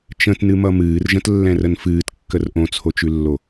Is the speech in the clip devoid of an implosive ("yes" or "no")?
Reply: yes